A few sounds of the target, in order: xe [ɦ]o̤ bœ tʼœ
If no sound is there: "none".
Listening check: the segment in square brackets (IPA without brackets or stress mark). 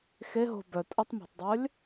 ɦ